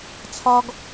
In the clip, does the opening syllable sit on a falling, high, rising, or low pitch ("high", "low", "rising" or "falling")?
high